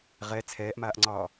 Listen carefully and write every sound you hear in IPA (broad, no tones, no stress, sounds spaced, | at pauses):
ʁ ɛ t͡sʰ ɛː ʔ m aː ʔ ŋ͡ǀ ɒː